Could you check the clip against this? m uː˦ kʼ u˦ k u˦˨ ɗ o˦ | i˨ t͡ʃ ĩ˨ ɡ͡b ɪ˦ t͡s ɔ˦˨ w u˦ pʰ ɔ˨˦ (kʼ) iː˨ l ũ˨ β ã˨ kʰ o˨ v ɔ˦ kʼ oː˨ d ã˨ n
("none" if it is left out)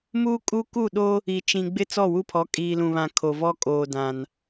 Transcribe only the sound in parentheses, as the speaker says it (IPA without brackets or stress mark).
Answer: kʼ